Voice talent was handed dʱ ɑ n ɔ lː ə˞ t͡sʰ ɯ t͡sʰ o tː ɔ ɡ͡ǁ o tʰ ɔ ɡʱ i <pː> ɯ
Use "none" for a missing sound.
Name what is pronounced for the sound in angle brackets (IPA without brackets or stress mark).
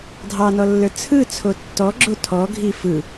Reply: f